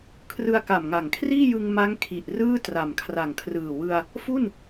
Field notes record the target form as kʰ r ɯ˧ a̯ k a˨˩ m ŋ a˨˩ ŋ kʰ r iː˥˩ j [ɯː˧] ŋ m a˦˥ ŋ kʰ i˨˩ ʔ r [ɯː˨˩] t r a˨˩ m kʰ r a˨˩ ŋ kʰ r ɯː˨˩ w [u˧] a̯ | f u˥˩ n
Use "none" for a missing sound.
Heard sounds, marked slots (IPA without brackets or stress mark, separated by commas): ɯ˧, ɯː˥˩, ɯ˧